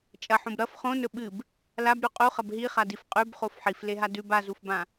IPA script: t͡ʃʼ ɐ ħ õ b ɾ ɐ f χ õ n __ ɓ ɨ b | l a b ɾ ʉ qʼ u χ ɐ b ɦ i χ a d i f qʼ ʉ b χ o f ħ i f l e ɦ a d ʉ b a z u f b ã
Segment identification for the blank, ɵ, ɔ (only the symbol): ɵ